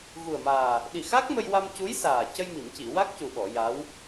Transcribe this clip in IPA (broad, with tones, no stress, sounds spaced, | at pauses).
ɣ u˨˩ ə̯ m aː˨˩ | ɗ i˨˩ x a˦˥ k̚ m ə˧ j w a˧ m c u˧˥ j s aː˨˩ c ə˧ j m i˨˩˨ m c i˨˩˨ w a˦˥ k̚ c u˨˩ ɓ ɔ˨˩˨ j a˧˥ w